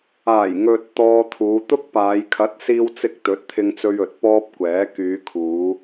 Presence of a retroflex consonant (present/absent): absent